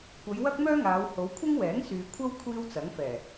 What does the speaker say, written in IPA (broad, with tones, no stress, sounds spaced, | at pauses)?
kʷ ɐ˨˧ j w ɐ˥ k̚ m œː˥ ŋ aː˨˧ w h o˨˧ w kʷʰ ɪ˥ ŋ w ɛː˨˥ ŋ s yː˨ kʷʰ ɐ˥ w kʷʰ iː˥ w t͡s ɐ˨˥ ŋ f ɛː˨˩